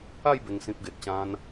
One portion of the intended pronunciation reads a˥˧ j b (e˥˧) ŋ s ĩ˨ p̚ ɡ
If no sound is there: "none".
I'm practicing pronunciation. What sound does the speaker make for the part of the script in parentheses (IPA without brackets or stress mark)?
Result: e˨˩